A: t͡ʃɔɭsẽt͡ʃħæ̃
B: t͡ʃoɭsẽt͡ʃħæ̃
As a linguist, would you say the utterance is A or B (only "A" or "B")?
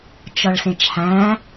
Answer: A